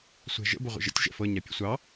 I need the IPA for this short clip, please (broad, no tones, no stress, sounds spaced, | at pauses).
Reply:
sʷ ɛ̤ ʒ ə̰ b ə ʁʷ ə̰ ʒ ə̰ tʲ ʒ ɛ̰ f ɤ ɲ a pʲ ɛ̰ sʷ ɑ